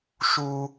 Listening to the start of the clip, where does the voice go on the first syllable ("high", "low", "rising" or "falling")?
low